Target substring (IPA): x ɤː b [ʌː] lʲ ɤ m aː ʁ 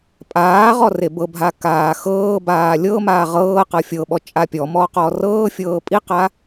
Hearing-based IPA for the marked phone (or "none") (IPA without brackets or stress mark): aː